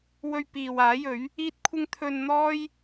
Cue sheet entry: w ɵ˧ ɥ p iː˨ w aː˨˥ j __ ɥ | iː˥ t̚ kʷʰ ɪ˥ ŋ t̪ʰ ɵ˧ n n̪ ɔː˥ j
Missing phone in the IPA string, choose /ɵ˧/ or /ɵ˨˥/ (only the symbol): ɵ˨˥